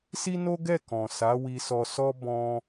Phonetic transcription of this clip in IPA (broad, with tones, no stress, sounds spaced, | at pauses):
s i˦ n o˦ ɡ ɛ˦˨ k ɔ̃˨ s a˨˦ w i˧ s ɔ˧ s ɔ˦ b ɔ̃˦